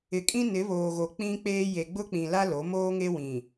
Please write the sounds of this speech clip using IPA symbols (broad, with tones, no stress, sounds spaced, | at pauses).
ɪ˨ kʼ ĩ˦ n ɪ˨˦ β oː˨ ɣ o˨ k͡p ĩ˦ k͡p eː˦ j e˨ ɡ͡b ʊ˦ k͡p ĩ˨ l a˦ l o˨˦ m oː˦ ŋ e˦ w ĩ˨